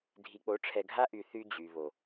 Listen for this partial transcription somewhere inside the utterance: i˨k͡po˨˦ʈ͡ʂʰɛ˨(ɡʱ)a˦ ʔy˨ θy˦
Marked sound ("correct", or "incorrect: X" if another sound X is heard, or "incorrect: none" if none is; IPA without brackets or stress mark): correct